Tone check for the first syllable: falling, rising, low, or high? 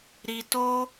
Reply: low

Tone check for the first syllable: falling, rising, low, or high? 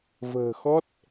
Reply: low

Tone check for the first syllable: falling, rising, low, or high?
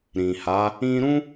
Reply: low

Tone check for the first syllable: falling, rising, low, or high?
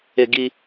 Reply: low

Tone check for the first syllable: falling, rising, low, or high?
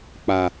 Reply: low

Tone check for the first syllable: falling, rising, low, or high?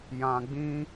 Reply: low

